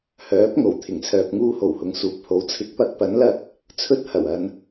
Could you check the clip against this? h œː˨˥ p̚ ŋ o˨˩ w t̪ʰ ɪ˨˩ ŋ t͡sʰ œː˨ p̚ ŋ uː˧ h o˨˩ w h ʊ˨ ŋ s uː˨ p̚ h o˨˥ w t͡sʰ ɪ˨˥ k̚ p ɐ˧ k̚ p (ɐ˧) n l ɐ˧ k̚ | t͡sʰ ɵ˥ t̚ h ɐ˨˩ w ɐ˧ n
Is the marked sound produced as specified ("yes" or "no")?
no